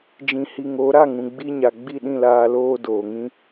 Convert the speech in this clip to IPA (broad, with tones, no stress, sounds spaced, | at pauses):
d͡ʒ ĩ˨ h i˨ ŋ o˨˦ ɾ a˦˨ ŋ ũ˨ ɡ͡b i˧ ɲ a˨ ɡ͡b i˦˨ ɗ ĩ˦˨ l aː˧ l oː˦ d oː˨ ŋ ĩ˦